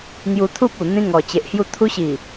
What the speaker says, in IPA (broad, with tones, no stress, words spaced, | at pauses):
ŋju˧t̪ʰu˦p̚ u˨˩ n̪ĩ˧ŋɔ˨˩t͡ɕe˨ʔhju˧ t̪ʰu˧ɕi˨˩